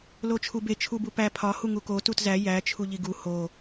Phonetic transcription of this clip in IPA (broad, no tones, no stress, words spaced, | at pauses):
lot͡ʃʰube t͡ʃʰubupæ pʰɒ huŋuko tutzæ jæ t͡ʃʰuʎiɡu ho